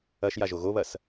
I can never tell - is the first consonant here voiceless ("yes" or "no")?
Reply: yes